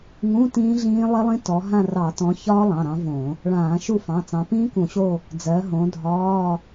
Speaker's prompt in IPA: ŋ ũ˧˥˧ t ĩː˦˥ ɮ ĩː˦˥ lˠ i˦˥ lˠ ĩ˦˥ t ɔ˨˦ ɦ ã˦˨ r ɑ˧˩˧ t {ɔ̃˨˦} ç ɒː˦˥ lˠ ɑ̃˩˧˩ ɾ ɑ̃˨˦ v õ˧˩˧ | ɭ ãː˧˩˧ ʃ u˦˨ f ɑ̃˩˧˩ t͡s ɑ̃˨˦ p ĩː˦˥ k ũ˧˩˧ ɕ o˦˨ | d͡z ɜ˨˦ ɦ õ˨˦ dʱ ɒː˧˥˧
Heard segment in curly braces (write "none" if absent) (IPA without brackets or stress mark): ɔ̃˨˦